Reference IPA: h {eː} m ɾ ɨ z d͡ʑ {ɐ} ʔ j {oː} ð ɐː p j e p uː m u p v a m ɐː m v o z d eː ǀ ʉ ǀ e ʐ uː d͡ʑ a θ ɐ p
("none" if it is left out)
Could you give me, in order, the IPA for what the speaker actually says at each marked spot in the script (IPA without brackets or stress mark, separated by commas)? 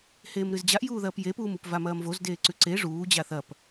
eː, a, uː